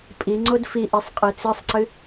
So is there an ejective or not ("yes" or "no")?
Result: yes